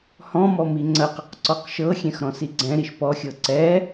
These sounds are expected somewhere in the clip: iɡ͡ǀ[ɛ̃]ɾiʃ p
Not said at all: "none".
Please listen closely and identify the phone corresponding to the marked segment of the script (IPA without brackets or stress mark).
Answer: ɛ̃